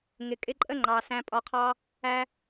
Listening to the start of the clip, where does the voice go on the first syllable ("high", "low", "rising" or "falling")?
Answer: low